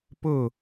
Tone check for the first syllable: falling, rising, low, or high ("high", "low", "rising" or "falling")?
falling